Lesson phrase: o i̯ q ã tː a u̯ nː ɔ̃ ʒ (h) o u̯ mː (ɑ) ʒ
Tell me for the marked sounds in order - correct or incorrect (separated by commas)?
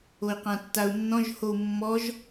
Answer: correct, incorrect